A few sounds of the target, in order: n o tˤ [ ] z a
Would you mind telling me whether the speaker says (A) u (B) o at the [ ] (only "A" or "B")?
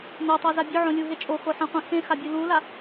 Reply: B